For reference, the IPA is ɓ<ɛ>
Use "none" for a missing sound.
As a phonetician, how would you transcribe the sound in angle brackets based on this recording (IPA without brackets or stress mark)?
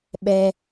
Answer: ɛ